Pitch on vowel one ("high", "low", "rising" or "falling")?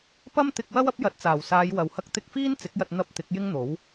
high